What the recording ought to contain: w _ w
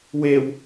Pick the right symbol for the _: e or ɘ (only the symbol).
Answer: e